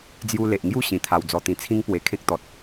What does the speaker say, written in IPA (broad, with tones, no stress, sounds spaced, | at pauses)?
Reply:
d͡z j u˧ l e˨ ʔ ŋ j u˥˧ ɕ ĩ˨˩ t̪ʰ a˧ w d͡z ɔ˧ t̪ ĩ˧ t͡sʰ ĩ˦ ŋ p w e˨˩ kʰ ẽ˦ k̚ t̪ ɔ˨ t̚